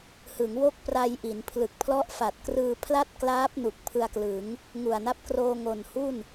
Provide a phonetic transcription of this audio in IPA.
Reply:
h ɯ˩˦ ŋ w o˥˩ k̚ p r a˧ j ʔ i˩˦ n pʰ l ɯ˨˩ k̚ pʰ l ɔ˦˥ ʔ f a˨˩ t̚ k r ɯː˧ pʰ l a˥˩ t̚ k l aː˦˥ p̚ n u˨˩ k̚ pʰ ɯ˧ a̯ k l ɯ˩˦ ŋ | ŋ u˨˩ a̯ n a˦˥ p̚ k r oː˧ ŋ o˨˩ n h u˥˩ n

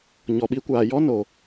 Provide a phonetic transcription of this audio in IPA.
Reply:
ɲ ɔ˨ ɓ iː˧ kʷ aː˨ j ɔ˦ n o˨

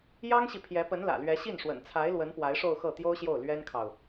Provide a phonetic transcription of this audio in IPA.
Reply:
j ɑ˥ ŋ ɕ i˨ pʰ j ɛ˧˥ p ə˧˥ n l ä̰˨˩ l ɥ ɛ˧˥ ɕ i˥˩ n ʂ w ə̰˨˩ n t͡sʰ a˧˥ ɪ̯ l w ə˧˥ n p w a˧˥ ɪ̯ ʂ o˥˧ ʊ̯ x ɤ˥˩ t̪ j o˥ ʊ̯ ɕ j o˥˩ ʊ̯ l ɥ ɛ˥ n kʰ ɑ˨ ʊ̯

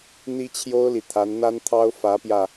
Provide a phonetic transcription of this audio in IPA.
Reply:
n̪ i˥ t͡ɕʰ j o˥ ʊ̯ l i˨ t̪ʰ a˧˥ n n̪ a˥ n t̪ʰ ɑ˥ ʊ̯ f ä˧˥ p j ä˧

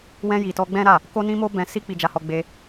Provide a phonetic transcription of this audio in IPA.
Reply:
w ɛ̃˧ j i˨ t ɔ˧ ɡ͡b ɛ̃˦ ɾ a˦˨ | k o˦ n ĩ˦ m o˦ b ɛ̃˧ s i˦ k͡p i˧ d͡ʒ a˧ h ɔ˧ ɡ͡b e˧

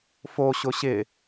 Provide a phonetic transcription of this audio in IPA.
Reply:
f o ɕ ʊ ɕ ɪ

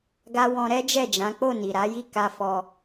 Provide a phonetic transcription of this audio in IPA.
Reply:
ɡ a˧ w ɔ̃˧ ɾ ɛ˦ d͡ʒ ɛ˦˨ d͡ʒ ã˨˦ k͡p o˦˨ n i˨ ɾ a˨˦ j i˦˨ k a˧ f ɔ˧

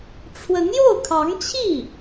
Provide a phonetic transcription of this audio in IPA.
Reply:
ʈ͡ʂʰ w ə˧˥ n j o˥˩ ʊ̯ kʰ ɑ˧˥ ŋ t͡ɕʰ i˥˩

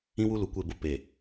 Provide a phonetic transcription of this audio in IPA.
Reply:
ĩ˦ w u˦ l u˨ kʷ e˦˨ b ʊ˦ p e˨

